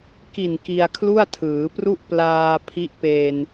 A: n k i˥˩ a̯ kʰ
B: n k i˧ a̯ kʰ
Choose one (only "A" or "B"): B